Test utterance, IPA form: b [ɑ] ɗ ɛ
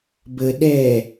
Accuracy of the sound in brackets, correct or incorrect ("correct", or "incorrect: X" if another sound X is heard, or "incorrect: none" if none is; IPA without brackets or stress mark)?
incorrect: ə